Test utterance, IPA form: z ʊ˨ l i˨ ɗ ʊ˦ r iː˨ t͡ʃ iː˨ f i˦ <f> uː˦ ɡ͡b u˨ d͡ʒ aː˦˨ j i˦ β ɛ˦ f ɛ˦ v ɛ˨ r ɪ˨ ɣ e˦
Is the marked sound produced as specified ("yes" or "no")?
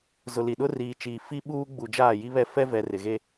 no